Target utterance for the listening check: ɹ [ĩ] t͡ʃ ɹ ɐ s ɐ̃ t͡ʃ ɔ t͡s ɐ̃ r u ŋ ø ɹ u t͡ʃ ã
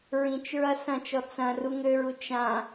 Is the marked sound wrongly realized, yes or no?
no